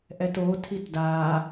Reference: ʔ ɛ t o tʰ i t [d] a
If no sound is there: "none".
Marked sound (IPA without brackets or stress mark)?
d